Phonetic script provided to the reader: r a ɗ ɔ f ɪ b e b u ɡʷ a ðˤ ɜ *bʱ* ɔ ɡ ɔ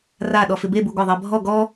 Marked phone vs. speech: correct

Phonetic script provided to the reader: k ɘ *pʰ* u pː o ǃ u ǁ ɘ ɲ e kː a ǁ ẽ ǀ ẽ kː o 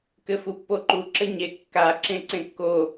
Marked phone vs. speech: incorrect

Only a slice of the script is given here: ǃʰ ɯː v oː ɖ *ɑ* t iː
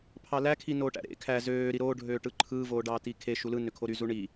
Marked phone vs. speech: incorrect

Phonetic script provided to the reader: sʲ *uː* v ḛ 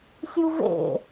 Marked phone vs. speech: incorrect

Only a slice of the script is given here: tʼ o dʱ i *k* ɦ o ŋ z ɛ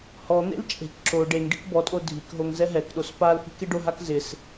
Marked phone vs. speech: correct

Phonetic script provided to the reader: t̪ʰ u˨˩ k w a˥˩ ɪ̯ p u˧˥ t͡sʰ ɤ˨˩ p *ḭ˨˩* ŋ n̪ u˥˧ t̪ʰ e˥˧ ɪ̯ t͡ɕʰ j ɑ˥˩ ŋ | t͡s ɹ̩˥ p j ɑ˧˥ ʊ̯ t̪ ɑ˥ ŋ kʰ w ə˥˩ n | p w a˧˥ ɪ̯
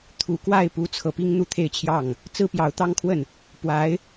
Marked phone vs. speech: incorrect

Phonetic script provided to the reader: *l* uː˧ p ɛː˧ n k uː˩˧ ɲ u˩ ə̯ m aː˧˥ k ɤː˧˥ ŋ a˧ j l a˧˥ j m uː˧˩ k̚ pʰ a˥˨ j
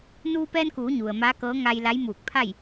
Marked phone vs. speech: incorrect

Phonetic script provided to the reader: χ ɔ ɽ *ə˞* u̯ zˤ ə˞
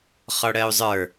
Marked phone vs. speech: incorrect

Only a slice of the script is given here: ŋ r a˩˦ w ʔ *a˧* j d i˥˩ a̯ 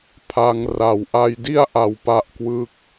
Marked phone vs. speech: correct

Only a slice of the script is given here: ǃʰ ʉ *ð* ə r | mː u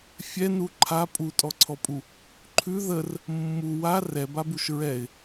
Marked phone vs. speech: correct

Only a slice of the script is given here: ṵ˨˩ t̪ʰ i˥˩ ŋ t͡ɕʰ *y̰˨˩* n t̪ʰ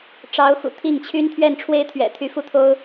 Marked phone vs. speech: incorrect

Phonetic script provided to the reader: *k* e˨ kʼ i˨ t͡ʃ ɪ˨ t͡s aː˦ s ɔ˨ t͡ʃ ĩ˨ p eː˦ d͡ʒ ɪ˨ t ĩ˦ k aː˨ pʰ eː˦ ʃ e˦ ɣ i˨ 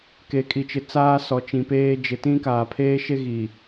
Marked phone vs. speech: correct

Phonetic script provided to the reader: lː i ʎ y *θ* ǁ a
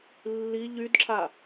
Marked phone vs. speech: incorrect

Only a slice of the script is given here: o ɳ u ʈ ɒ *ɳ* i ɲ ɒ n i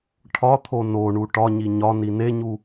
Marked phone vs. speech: incorrect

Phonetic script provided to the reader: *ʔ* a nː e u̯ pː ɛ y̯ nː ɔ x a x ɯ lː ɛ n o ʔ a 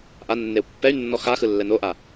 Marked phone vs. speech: correct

